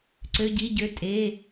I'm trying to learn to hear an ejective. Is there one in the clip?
yes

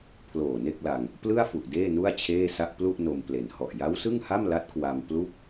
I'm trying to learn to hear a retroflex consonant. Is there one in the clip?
no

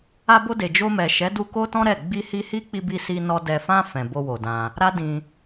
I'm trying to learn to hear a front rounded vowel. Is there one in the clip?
no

